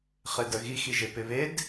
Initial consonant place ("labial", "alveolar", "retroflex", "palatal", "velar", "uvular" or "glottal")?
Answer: uvular